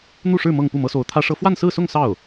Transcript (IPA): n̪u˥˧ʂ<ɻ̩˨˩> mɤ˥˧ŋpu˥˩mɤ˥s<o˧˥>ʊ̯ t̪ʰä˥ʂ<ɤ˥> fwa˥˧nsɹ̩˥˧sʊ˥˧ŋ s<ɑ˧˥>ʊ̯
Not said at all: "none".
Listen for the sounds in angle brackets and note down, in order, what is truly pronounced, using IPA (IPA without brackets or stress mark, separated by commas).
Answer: ɻ̩˥˧, o˧˥, ɤ˥, ɑ˥˩